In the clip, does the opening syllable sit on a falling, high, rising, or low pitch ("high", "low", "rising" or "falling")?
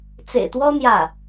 low